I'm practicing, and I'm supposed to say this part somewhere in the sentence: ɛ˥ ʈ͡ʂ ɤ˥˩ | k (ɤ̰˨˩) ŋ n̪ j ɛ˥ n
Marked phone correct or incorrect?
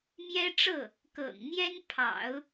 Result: correct